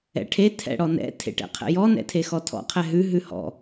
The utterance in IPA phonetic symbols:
ɛ̰ ʈʰ e tʰ ɛ̰ ɽ ɔ n ɛ̰ tʰ ḛ ʈ ɛ̰ qʰ ɛ̰ j ɔ n ɛ̰ tʰ e x ɔ tʰ ɔ̰ qʰ ɛ ɦ ʉ ɦ ʉ h ɔ̰

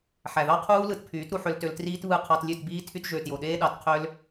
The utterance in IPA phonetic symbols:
ħ æ˨ ð ɑ˦ qʰ uː˦ l ɯ˧ t pʰ yː˨˦ t ɾ u˧ ħ ø˧ l t ø˧ l t r iː˦ t β ɯ˦˨ qʰ ɑ˧ t lʲ ø˦˨ t b iː˦ tʰ y˧ t ʒ ø˨ t j o˨ ɗ eː˦ ɗ ɑ˨˦ t qʰ ø˦ l

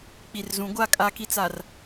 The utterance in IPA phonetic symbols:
k͡p i˨ r z ũ˨˦ ɡʷ a˦˨ kʼ a˦ k i˦ t͡s a˨ r

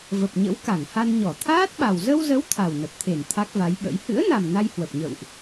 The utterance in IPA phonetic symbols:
v ə˨˩ p̚ ɲ ə̰˧˥ w k a˧˩ ŋ h a˧ n ɲ ɔ˧˩ t̪ʰ aː˦˥ t̚ ɓ a˨˩ w z ə˧ w z ə˨˦ w t̪ʰ a˨˩ w n ə˨˩ p̚ t̪ʰ e˧˩ n t̪ʰ a˦˥ k̚ v a˨˦ j ɓ ə̰˧˥ j h ɨ̰˧˥ ə̯ n a˨˩ m n a˧ j h w ə˨˩ p̚ ɲ ə̰˧˨ w ʔ

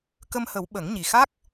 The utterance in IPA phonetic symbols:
k ə˧ m h ə˨˩˦ w ɓ ə˨˩˦ ŋ ɲ i˨˩ x a˦˥ k̚

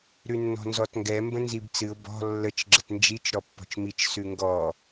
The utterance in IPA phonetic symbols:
ɾ ʉ nː ɔ̤ n z ɔ t ŋ ɡ ɛ m b ə̃ n z i b t͡s ɨ ʊ̯ b ɔ̤ lː ə t͡ʃ ɡ͡ǁ ə t n d͡ʒ i t͡ʃ ɾ ɔ pː ɔ̤ t͡ʃ m i t͡ʃ s ʉ ŋ ɡ ɔ

